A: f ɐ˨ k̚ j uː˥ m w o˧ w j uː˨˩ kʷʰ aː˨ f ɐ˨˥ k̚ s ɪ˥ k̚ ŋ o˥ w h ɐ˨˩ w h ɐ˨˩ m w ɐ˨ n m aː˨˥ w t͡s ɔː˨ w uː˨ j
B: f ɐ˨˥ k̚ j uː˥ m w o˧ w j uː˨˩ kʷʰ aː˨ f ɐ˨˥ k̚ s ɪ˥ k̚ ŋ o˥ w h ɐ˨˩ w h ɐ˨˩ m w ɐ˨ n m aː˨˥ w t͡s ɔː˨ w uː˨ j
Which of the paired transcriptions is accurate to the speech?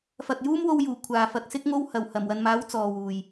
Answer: A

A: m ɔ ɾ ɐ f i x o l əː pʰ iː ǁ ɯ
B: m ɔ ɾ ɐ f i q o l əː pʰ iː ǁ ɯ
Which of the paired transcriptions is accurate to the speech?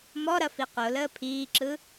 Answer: B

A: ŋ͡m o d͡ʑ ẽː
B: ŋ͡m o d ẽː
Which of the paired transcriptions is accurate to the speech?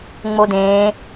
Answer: B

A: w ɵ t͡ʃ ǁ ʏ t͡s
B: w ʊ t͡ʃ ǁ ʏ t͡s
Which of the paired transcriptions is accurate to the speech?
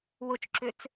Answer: B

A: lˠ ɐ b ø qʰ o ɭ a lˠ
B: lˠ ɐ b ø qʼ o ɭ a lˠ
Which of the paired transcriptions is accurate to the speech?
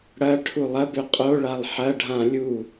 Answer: B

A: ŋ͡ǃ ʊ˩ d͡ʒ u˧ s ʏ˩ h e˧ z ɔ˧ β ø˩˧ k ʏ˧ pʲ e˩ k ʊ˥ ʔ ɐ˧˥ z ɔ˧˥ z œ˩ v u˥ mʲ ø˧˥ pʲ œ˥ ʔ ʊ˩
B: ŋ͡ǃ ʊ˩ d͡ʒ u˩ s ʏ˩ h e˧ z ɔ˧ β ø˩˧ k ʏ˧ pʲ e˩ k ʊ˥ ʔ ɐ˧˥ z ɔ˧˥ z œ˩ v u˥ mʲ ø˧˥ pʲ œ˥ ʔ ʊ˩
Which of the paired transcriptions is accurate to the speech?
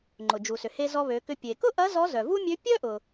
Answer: B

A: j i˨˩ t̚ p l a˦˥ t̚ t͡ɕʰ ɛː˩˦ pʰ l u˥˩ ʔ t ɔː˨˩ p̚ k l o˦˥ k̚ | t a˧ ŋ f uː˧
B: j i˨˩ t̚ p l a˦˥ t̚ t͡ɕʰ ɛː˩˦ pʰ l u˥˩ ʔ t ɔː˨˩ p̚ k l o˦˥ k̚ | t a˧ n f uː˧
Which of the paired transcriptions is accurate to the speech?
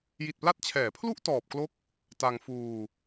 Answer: A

